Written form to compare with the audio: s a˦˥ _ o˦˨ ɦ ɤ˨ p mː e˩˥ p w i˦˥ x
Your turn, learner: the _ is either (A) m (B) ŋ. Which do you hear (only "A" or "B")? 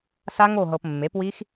B